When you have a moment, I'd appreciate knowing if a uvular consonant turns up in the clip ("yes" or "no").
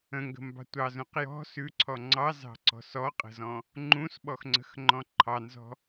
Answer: yes